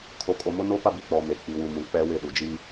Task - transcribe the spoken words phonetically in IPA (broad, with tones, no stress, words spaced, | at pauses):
kʰo˨kʼo˨mʊ˦ no˦pa˦bi˨k͡pɔ˨ me˨k͡pi˨wu˨ mũ˨k͡pɛ˦wɪ˦˨ɗu˨ d͡ʒiː˦